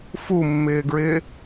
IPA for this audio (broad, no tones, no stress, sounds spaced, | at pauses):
f u mː ɪː ɡ ɹ ɪː